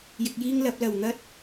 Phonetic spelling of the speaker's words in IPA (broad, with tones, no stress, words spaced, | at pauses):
jɪ˧k̚jiː˥ŋlɐ˨˥p̚ lɐ˨˩wn̪ɐ˧t̚